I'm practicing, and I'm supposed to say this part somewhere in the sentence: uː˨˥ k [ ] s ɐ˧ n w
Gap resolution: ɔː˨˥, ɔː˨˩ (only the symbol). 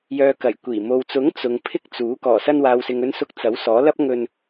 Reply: ɔː˨˩